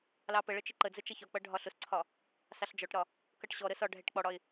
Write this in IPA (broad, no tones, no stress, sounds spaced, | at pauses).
l ɑ p ə ɭ ə t͡ʃ ɪ ǃ ə d͡z ə t͡ʃ ʌ ç ɒ k͡p ʌ ɖʱ ɒ ɬ ʊ s ǀʰ ɒ | s ɑ ɬ d͡ʒ ɔ ʈ ɾ ɒ | k ʌ ʈ ɕ ɔ ɾ ə s ɒ ɖʱ ɛ ʈ k͡p ɔ ɽ ɒ ɪ̯